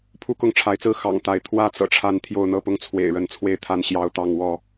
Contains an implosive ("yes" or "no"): no